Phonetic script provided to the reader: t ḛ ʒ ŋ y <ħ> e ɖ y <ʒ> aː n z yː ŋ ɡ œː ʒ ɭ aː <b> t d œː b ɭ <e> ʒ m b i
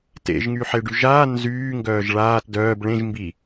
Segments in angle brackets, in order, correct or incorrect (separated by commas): correct, correct, incorrect, incorrect